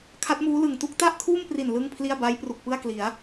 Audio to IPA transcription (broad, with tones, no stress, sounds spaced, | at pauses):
kʰ a˦˥ t̚ m uː˦˥ l ɯ˨˩ ŋ t u˥˩ k̚ t a˥˩ ʔ kʰ uː˥˩ m p r i˨˩ n l ɯ˥˩ ŋ pʰ l i˥˩ a̯ b a˦˥ j p r u˨˩ k̚ p ɯ˥˩ a̯ k l i˩˦ a̯